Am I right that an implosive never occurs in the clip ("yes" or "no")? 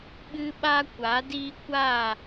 no